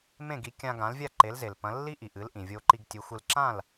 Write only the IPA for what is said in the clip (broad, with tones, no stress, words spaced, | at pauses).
mẽ˥˩ɡi˩˥ kʲã˧ɡã˩˥lvʲa˥˩ ǃe˩˥lze˩lpɐ̃˩˥ lːi˥ʔi˩ʔɨ˩˥lʔĩ˩ vʲo˧ǃi˧ɡtʲɨ˩˥xʷɨ˧l ǁã˥˩l